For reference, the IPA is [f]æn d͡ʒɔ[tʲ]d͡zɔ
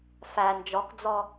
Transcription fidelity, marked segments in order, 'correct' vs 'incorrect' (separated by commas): correct, incorrect